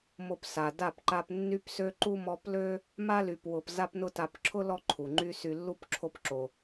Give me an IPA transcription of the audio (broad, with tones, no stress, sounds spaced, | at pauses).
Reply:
m o˧ p s a˨ d a˦˨ p ǃ a˧ p nː y˦ p s ø˦ ǃ u˦ m ɔ˧ p l ø˦ | m a˦ l y˨ p w ʊ˨ p z a˦ p n ʊ˦ t a˧ p ǁʰ ʊ˦ l ɔ˦ ǃʰ u˨ ŋ͡ǃ y˧ s y˨ lː u˧ p ǁʰ o˧ p ǁ o˨